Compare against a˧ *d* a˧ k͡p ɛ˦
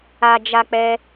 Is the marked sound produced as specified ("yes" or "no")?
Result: no